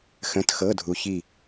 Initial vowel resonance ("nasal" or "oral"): nasal